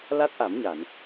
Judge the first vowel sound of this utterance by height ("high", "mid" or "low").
low